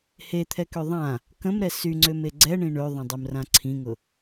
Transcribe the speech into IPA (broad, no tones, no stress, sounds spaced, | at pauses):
h e t̪ʰ ɛ k ø ðˤ ã | k ə̃ m ɾ ɛ s y ŋ͡ǀ ø m e ɡ͡ǀ ɛ ɳ ĩ ɳ ø ðˤ ə̃ dˤ ø m r ã ǀʰ ĩ ŋ ʊ